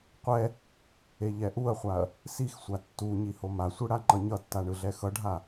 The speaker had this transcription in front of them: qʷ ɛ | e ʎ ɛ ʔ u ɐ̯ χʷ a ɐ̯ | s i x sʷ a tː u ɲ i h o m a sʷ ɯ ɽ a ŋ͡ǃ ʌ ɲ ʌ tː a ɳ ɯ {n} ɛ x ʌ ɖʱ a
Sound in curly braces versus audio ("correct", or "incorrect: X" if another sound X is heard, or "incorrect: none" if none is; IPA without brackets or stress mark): incorrect: ɮ